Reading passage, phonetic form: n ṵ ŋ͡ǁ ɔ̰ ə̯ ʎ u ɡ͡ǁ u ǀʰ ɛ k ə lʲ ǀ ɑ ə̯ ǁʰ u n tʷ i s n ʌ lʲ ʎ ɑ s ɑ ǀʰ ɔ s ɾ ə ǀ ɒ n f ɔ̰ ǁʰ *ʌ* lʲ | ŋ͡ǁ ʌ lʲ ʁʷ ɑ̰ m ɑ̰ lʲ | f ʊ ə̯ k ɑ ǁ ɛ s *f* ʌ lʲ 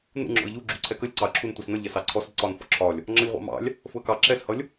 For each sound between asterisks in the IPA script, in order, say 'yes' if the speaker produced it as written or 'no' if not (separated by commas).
no, no